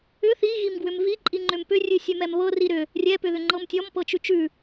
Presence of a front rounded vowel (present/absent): present